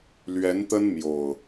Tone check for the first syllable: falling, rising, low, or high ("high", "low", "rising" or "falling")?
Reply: rising